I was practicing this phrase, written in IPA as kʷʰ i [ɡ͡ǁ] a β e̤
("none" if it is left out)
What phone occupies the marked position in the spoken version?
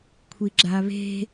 ɡ͡ǁ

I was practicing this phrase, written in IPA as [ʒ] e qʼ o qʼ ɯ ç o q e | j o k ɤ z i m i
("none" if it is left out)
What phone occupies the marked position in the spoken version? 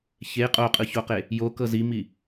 ç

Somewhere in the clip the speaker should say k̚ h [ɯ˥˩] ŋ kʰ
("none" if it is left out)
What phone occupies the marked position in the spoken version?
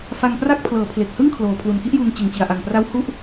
ɯ˥˩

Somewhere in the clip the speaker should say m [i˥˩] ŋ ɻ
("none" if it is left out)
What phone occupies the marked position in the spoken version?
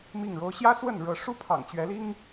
i˥˩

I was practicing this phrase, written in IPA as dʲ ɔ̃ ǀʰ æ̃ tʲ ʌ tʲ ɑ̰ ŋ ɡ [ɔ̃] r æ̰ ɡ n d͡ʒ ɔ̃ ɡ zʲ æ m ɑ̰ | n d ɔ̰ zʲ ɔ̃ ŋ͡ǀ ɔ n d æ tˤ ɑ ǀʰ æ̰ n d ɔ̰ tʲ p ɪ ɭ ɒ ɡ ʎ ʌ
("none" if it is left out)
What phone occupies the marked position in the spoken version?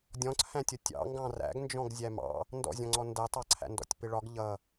ɑ̃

